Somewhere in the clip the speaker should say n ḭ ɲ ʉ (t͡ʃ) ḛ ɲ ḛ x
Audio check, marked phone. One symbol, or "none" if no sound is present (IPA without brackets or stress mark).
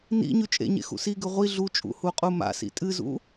t͡ʃʼ